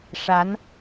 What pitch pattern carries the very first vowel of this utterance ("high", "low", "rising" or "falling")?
rising